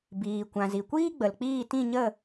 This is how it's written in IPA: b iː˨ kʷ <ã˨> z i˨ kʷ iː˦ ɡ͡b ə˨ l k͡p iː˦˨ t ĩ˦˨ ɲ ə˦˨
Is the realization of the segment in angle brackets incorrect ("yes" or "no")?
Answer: no